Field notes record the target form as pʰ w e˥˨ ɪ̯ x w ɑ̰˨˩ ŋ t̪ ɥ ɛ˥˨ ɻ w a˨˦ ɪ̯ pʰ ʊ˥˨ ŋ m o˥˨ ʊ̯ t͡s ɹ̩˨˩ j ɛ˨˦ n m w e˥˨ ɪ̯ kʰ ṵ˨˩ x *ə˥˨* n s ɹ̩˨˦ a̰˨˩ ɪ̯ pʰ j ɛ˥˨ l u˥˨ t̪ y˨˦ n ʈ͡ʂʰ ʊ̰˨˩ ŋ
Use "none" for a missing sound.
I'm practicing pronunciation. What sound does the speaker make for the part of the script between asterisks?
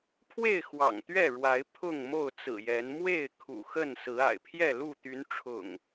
ə˥˨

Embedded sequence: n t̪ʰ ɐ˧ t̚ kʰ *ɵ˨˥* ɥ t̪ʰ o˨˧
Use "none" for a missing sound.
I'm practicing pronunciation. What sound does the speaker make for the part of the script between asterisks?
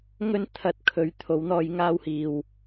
ɵ˨˧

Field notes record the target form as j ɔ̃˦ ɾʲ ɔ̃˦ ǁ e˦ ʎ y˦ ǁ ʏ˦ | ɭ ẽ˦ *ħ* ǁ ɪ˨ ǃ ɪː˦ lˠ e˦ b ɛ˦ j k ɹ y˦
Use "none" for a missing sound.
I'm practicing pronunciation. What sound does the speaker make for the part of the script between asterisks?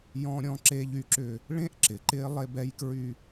ʔ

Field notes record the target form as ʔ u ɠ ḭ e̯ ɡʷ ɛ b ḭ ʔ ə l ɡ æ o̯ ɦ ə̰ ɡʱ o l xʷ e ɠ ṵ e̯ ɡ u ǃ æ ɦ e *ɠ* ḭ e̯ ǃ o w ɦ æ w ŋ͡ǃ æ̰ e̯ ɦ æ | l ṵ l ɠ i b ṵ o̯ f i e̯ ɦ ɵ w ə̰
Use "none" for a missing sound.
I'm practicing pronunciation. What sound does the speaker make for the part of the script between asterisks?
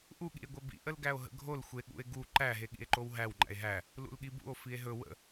ɠ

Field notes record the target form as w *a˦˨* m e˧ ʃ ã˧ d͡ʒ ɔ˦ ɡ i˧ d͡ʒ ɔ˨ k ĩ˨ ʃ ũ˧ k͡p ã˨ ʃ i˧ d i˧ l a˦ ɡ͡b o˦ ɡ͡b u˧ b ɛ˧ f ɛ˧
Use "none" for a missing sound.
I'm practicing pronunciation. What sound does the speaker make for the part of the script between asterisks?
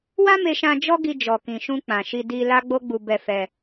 a˦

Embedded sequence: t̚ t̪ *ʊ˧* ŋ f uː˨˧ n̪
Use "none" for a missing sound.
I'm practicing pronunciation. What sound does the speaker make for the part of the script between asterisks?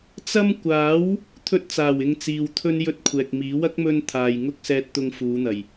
ʊ˧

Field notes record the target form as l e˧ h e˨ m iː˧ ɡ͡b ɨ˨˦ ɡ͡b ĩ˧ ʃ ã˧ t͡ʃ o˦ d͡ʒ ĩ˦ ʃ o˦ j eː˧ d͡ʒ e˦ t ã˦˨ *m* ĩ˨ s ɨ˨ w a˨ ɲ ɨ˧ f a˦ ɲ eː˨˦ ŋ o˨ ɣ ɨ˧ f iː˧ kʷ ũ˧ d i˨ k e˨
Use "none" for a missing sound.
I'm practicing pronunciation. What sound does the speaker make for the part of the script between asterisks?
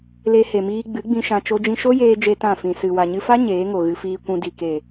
f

